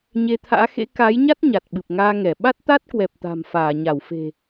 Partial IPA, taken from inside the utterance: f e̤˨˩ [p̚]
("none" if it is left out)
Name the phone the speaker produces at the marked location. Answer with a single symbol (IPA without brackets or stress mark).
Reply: none